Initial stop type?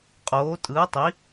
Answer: ejective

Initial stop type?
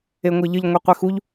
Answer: plain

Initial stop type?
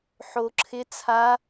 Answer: click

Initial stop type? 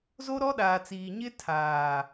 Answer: implosive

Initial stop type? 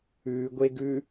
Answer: plain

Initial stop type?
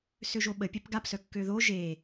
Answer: implosive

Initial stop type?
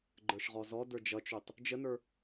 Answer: click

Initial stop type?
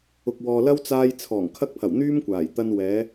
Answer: plain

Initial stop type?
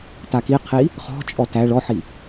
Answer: plain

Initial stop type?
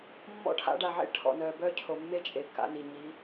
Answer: aspirated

